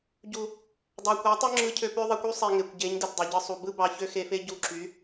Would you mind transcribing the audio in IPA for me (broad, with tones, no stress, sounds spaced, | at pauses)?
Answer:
ɟ u˨ | dˤ ɑ˨ kʷ ɑ˨˦ tˤ u˦ ŋ͡ǁ ɯ˧ cʰ ø˧ p ø˧ ðˤ e˧ kʷ y˦ sˤ e˧ ŋ e˨ kʷ ɟ e˨˦ ɲ d ɯ˨ t dˤ ø˨ ɟ ɯ˧ sˤ u˨ b ɯ˦ b ɑ˧ ç ø˦ x e˧ f e˦ ɟ u˧ ǁ y˨˦